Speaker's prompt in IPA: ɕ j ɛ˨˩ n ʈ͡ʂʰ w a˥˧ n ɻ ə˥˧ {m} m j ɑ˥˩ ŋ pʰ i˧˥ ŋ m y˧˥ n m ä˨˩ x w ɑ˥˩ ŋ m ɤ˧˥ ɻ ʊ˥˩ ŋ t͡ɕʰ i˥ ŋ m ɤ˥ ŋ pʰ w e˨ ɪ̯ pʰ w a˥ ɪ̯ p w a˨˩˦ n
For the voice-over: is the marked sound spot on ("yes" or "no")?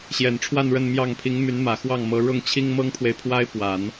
no